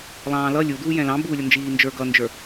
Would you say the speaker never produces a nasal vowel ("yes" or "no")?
no